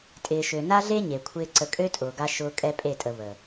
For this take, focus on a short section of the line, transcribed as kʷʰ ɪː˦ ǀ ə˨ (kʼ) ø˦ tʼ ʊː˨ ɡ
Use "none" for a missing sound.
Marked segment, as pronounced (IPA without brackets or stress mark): kʼ